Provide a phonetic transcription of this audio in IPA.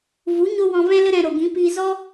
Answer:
v u˨˦ ɲ o˦ w ɔ̃˧ v ɛ̃˦ l ə˦ ɾ ɛ̃˧ ɾ o˨ ɡ ĩ˨˦ p iː˧ z ɔ˦

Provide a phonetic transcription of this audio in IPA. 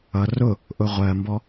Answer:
ʌ r ʊ | ʔ ʊ ʁʷ ɜ m b ɔ

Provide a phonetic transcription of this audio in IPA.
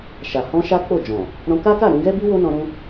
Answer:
ʃ a˨ h ɔ̃˧ ʃ a˦ k͡p o˦˨ d͡ʒ ɔ̃˨ | ɾ ɔ̃˧ k a˦ k a˦˨ ɾ ũ˧ ɡ ɛ˦ b i˦ w o˦ n ɔ̃˧ ɾ ũ˧

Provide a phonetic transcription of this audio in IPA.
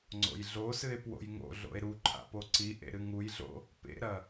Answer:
ŋ͡ǀ o̰ j ɮ o s ɨ e̯ p w o̰ j ŋ o̰ ɮ o̰ e̯ ɾ u ǃʰ a̰ p o ǀ i ʔ ḛ ɾ ɨ ŋ u j ɮ o̰ | p ḛ ɾ ɐ

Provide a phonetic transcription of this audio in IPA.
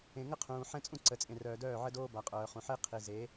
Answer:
ẽ˨ ŋ ə˦ qʰ ũː˨ ħ ɛ̃˦ t͡sʼ ũ˦ ǀ ə˨ t͡sʼ ẽ˨ r œː˨ d œː˦˨ ʕ ə˦ d oː˦ b a˨ qʼ œː˨ χ ũ˨ ħ e˦ qʰ i˨ z e˨˦

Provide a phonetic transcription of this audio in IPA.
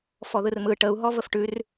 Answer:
f ɔ ð ɯ r m ɯ ʈ ə u̯ ɦ ɔ v ə f ʈ ʉ r

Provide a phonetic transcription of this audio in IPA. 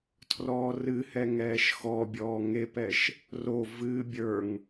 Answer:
tʰ r ɔː r ɨ h ɛ ŋ ɛː ʃ x ɔ bʲ ɔː ŋ e p ɛ ʃ | r o v ɨː bʲ ə˞ ŋ

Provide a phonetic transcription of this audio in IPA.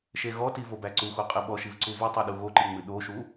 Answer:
ʃ e ɣ ɔ t i v o b æ ǀ u x o qʼ ɨ ɓ ɔ ʃ i v ǀ u v ɨ tˤ o ɗ u ɣ o ǃ i ŋ͡m ɨ ɗ o ʃ u

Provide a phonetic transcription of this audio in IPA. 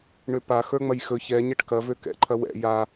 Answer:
ɳ ø p a x ə˞ ŋ͡m ɐ j x ɵ ç ɛ ɲ ɛ ʈ k ɐ v ø k ɛ̰ ǃʰ ɐ w ɛ̰ j a

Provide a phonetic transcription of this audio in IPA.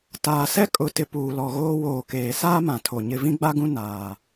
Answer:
t aː˨ s ɛ˦ kʼ ʊ˨ t ɪ˨ p uː˨ l ɔ˨ ɣ oː˦ w oː˨ k eː˨ s aː˦ m ã˨ tʰ o˨ ɲ ɪ˦ v ĩ˦ ɡ͡b a˦ ɡ ũ˦ n aː˨

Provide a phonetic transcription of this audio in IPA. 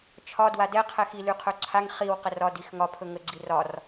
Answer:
t͡ʃʰ ɒ d w a d ɛ qʰ ɛ x i l y qʰ ɵ ǀʰ a ŋ χ i w q ə r ɒ d i x ŋ ɒ pʰ ɵ ŋ ə ɡ͡ǀ i r ɒ r

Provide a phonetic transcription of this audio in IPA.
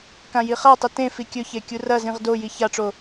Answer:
k ã j i χ a tˤ ɨ t ẽ f i kʲ ɵ ç e kʲ u r ɐ z ĩ ʁ d o j i ç a ʈ͡ʂ o

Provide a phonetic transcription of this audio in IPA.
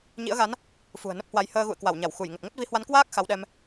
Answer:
ɲ ḭ˧˥ ə̯ ɣ a˨˦ n | f ṳ˨˩ ə̯ n ə˦˥ p̚ h w a˨˦ j h əː˧ ɣ ṵ˧˨ ə̯ k w a˧˩ w ɲ a˧˩ w x u˧˩ j ŋ ə˨˩ t̚ ŋ ə˦˥ t̚ v i˨˦ h w a˨˦ n k w aː˦˥ k̚ x a˨˦ w ɗ ɛ˧ m

